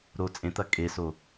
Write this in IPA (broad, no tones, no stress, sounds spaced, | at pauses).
ɾ o t͡sʼ ẽ t̪ ɐ kʼ e s o